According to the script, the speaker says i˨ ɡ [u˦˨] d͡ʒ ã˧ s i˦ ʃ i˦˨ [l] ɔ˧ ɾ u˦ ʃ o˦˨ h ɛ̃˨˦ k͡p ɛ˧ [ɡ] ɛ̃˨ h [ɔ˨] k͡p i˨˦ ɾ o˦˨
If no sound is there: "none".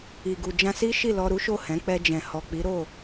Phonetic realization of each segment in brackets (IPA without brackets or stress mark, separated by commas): u˨, l, d͡ʒ, ɔ˨